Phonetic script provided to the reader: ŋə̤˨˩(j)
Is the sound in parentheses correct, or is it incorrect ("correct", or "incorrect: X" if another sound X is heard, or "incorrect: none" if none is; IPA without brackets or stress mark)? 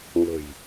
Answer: correct